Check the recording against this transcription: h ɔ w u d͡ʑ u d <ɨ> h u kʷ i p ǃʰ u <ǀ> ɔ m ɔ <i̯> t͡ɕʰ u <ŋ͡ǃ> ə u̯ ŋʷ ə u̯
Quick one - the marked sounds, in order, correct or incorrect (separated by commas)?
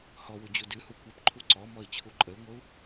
correct, correct, correct, incorrect